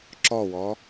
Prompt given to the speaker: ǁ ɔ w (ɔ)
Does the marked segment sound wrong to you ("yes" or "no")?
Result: no